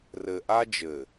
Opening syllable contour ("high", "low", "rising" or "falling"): low